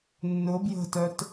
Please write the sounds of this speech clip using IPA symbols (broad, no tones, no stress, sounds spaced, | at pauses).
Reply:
nː ʊ b j ə̤ t œ t